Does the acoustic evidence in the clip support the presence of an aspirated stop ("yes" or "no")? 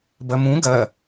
no